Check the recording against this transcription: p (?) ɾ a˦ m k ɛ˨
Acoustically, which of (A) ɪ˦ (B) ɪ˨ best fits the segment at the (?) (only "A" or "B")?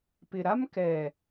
B